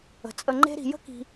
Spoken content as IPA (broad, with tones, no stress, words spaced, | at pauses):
ə̤˨t͡sʼə˧ŋ͡ǃe̤˦ɾi̤˧ jə̤˦ki̤˧